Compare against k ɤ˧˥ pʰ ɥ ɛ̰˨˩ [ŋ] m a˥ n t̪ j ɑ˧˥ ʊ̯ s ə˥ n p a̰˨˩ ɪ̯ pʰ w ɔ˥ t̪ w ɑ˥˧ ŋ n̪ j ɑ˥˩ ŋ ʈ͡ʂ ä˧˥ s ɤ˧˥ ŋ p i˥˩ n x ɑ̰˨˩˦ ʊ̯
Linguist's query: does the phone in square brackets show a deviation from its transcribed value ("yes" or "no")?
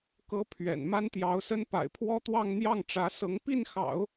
yes